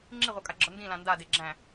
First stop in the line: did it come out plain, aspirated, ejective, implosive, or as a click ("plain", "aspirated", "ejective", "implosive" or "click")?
click